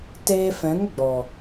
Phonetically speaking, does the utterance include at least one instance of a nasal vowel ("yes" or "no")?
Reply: yes